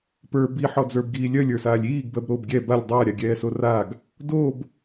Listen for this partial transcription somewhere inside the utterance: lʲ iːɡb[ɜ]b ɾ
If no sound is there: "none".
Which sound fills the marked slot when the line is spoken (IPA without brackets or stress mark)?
ɜ